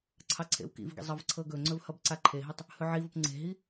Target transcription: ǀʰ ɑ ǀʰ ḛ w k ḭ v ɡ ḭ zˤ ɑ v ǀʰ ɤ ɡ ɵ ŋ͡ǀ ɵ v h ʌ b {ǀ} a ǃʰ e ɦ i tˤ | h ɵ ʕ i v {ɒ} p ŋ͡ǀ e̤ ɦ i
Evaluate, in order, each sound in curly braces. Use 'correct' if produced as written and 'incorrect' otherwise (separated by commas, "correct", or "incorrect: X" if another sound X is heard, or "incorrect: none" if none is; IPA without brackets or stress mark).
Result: correct, incorrect: ʌ